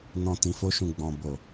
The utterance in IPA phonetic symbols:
n ɔ̃˨ t ĩ˨ f o˧ ʃ ũ˨ ɡ͡b ɔ̃˨ b o˨

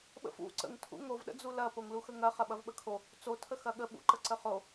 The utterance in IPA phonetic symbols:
ɓ ə̰ f ṵ ǀ ə̰ ŋ tʰ ṵ ŋ o v ɗ ə̰ d͡z u l ɐ p o ŋ l u x ə ŋ ɐ χ ɐ ɓ ɐ v ɓ ə kʰ o | t͡s o tʰ ə x ɐ ɠ ə ɓ ṵ ǃ ə ǀ ə χ o

